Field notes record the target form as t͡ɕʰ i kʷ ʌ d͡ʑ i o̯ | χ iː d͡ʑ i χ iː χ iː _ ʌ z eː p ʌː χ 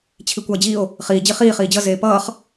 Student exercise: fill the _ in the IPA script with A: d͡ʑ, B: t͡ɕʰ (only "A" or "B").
A